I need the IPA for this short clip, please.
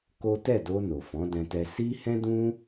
k o˦ t ɛ˦˨ d o˧ n o˨ f ɔ̃˨˦ d ɛ̃˧ t ɛ˧ s i˦ h ɛ̃˦ d ũ˦

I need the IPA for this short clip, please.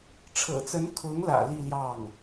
ʈ͡ʂʰ ɤ̰˨˩ t͡s ə˧˥ n kʰ ʊ˧˥ ŋ l ä̰˨˩ l i˥˧ l j ɑ˥˩ ŋ

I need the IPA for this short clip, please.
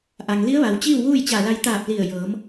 ʔ a˩ ŋ l i˧˥ ə̯ ʋ a˩ w t͡ɕ iː˥˨ w ʋ uː˥˨ j t͡ɕ a˧˩ l a˧ j t̪ aː˧˩ p̚ l i˧˩ ə̯ j ɤː˩˧ m

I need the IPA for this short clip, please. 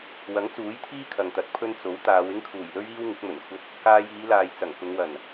w ɐ˨˥ ŋ t͡s uː˨˥ j t̪ʰ iː˥ kʰ ɐ˨ ŋ t̪ ɐ˨˥ t̚ pʰ ɵ˥ n t͡s o˨˥ w t̪ aː˨˧ w ɪ˥ ŋ kʰ uː˨˩ j l ɵ˥ ɥ iː˥ w ŋ ɪ˨˥ k̚ m ɵ˨˩ n kʷʰ ɐ˥ t̚ | k aː˧ j iː˨˧ l aː˨ j t͡s ɐ˨˩ ŋ k ʊ˨˧ ŋ w ɐ˨˩ n

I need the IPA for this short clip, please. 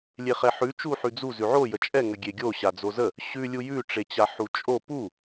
lʲ e χ ɛ ħ ʉ t͡ʃ u ħ ʉ d͡z u z ʉ ʕ o j ə t͡ʃʼ ɛ ŋ ə ɡʲ e ɡʲ o ɕ a d͡z o z ə | ɕ ʉ lʲ u j ʉ ʈ͡ʂ e t͡ɕ a ħ u t͡ʃʼ o p u

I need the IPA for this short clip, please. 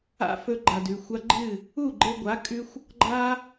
a̰˦ f ɵ˧ ɡ͡ǃ a˨ d ʉ˨ xʷ a˧ ɡ͡ǃ ɨ˦˨ | u˦˨ ɡ͡ǃ e˧ ɡʷ a˨˦ kʼ ʉ˦ xʷ | ɡ͡ǃ a˦

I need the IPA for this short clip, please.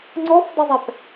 ŋ͡ǀ ɔ f dˤ ə zˤ ɛ p

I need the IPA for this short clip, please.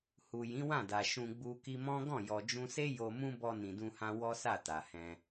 h u˨ j ĩ˨˦ w ã˦˨ d a˨ ʃ ũ˧ ɡ͡b u˧ k i˧ m ɔ̃˦ ɡ ɔ̃˦˨ j ɔ˨ d͡ʒ ũ˧ s e˦ j o˧ m ũ˦ b ɔ˧ n ĩ˨ d ũ˧ h ã˧ w ɔ˦ s a˦˨ t a˨ h ɛ̃˧

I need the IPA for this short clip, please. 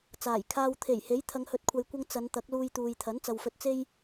t͡s aː˨˩ j kʰ aː˨ w t̪ʰ e˨˩ j h e˨˥ j t̪ʰ ɐ˨˧ ŋ h ɵ˨˥ t̚ kʷʰ ɐ˨ j kʷ ɐ˧ ŋ t͡s ɐ˨˧ n t̪ ɐ˨˥ k̚ l uː˧ j t̪ uː˨ j t̪ʰ ɐ˨˥ n t͡s ɐ˨ w f ɵ˧ t̚ t͡s e˥ j

